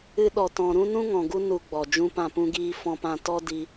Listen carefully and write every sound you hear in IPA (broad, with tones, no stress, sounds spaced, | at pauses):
ɨ˦ ɗ ɔ˧ t ɔ̃˧ ɾ ũ˦ n ũ˦ ŋ ɔ̃˨ ɡ u˦ n u˧ ɡ͡b ɔ˨ d͡ʒ ũ˦ p ã˦˨ p ũ˦ ɡ iː˦ f ɔ̃˦ p ã˦ t ɔ˦ d i˧